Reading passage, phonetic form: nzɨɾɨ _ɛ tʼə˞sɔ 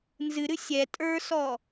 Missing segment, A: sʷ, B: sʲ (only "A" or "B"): B